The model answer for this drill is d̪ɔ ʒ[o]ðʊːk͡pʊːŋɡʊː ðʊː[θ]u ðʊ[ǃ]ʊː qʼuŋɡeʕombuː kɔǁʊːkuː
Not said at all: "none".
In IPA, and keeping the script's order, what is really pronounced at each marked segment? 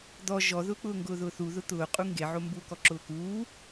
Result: ɔ, θ, t̪

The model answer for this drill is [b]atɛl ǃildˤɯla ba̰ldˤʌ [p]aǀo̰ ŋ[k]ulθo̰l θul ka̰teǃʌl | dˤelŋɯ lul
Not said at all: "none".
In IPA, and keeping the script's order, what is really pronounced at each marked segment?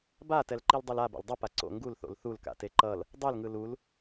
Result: b, p, ɡ

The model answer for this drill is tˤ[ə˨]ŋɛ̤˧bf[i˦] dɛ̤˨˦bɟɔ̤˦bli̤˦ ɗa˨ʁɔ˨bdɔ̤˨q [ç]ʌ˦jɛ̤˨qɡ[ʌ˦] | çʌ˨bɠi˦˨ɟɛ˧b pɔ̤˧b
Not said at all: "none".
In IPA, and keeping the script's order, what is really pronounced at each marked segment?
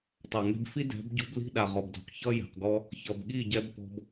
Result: a˨, i˦, ç, ɔ˦

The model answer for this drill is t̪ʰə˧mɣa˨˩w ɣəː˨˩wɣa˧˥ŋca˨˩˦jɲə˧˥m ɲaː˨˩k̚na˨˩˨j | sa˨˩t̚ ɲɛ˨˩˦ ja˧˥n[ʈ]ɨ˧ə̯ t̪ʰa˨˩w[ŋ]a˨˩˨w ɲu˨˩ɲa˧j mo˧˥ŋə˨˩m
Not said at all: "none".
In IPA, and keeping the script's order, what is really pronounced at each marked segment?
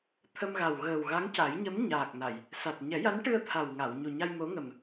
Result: ʈ, ŋ

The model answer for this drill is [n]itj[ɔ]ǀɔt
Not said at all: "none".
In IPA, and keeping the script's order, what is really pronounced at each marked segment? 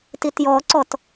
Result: t, ɔ

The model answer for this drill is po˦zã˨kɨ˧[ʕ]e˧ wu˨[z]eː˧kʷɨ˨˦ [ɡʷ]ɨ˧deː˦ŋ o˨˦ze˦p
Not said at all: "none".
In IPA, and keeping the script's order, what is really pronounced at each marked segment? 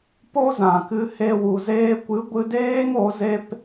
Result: h, z, ɡʷ

